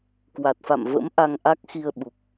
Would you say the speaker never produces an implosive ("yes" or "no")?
no